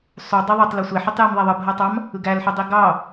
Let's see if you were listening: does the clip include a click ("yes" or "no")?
no